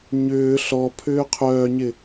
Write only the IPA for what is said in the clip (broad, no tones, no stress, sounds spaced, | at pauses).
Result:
ɲ ʏː ɬ ɔ pʰ ʏː qʰ œː ɲ ɪ